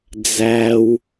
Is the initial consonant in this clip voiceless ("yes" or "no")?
no